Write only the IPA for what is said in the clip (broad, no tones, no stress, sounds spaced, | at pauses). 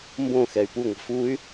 m b õ x ɛ y̯ p u ŋʷ ə̤ f u y̯